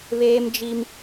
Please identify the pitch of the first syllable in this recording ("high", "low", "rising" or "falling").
high